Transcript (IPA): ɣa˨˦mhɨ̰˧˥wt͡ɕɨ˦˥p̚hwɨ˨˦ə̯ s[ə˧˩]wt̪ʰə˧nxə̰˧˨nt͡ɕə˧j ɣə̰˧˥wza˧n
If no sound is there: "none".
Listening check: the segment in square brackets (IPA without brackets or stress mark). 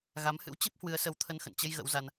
ə˨˦